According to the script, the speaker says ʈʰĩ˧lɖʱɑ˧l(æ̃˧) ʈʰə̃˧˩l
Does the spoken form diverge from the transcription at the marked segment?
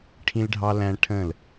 no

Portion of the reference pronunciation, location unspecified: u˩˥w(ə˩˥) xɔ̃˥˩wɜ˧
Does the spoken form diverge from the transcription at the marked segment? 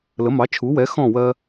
yes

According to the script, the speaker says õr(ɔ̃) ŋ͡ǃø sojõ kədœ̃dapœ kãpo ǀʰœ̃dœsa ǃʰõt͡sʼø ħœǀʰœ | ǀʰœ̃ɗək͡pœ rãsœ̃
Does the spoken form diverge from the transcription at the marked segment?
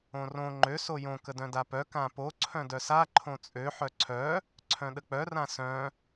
yes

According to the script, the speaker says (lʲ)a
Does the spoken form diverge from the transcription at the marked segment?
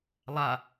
yes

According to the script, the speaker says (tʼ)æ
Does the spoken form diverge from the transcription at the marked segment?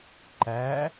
yes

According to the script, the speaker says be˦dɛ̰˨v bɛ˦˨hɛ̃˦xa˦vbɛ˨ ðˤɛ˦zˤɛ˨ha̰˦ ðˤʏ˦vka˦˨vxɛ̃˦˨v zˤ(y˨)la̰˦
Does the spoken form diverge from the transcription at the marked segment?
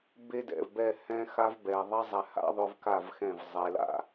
yes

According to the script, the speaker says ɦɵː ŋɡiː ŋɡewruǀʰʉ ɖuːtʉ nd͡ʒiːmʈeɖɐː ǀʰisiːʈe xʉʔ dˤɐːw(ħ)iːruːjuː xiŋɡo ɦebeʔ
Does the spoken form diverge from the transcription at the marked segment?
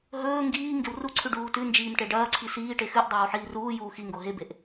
no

